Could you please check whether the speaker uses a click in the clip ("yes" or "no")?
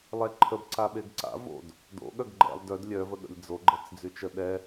yes